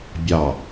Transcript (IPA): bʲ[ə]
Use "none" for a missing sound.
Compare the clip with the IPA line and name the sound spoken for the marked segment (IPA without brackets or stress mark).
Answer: ɑ